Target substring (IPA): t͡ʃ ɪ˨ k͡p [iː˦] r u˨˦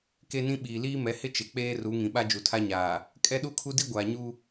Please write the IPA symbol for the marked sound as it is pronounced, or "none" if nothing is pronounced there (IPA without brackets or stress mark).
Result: eː˦